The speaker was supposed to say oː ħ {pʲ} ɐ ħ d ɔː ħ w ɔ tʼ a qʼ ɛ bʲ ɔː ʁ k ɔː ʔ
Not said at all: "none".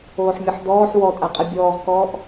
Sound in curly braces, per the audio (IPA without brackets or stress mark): mʲ